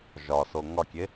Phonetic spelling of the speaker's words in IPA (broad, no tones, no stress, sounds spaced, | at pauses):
ʒ ɒ s o ŋ ɒ kʲ e